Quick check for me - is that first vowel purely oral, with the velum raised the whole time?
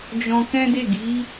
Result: no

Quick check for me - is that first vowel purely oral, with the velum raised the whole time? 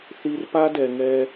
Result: yes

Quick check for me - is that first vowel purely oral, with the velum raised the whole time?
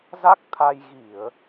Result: yes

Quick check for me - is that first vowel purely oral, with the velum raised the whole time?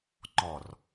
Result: yes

